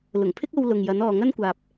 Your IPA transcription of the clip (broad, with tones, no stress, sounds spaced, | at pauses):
l ʊ˨˩ ŋ pʰ ɪ˥ k̚ o˧ w l ʊ˨ ŋ j ɐ˨˧ n ɔː˨ ŋ ɐ˥ n kʷ aː˨ p̚